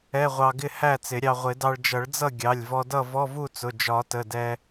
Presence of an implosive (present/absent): absent